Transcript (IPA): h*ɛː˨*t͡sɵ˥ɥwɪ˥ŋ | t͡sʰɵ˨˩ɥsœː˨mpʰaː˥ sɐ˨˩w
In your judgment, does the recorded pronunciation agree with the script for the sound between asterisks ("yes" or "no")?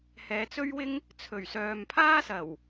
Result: yes